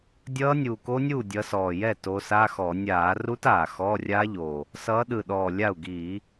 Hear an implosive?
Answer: yes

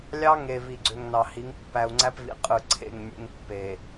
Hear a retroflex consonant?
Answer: no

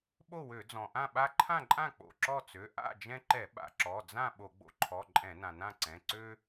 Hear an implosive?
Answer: yes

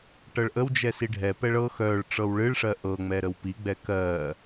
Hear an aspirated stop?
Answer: no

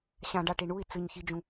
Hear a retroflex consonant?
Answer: yes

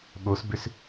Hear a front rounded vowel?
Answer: yes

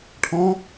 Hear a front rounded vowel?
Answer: no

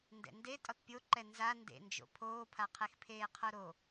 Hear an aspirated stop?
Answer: yes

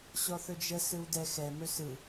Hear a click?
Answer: no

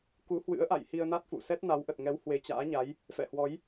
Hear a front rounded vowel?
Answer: no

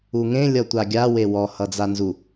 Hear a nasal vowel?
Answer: yes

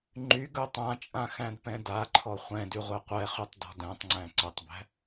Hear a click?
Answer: yes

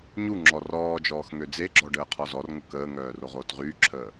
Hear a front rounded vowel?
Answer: yes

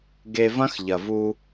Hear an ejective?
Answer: no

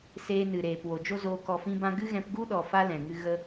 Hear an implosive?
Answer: yes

